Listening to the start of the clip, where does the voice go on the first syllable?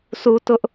high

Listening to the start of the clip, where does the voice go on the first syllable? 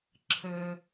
low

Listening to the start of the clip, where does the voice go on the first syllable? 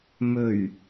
low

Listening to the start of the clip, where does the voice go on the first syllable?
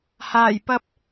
low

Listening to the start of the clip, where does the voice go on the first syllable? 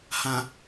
low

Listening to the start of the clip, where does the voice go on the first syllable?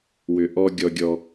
low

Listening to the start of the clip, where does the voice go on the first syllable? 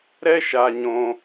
high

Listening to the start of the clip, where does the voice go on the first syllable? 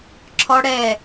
high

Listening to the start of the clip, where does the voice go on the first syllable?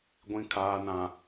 low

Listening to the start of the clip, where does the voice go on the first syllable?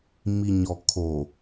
low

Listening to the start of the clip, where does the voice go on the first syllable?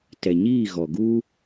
low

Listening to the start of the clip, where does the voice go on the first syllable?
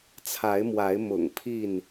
rising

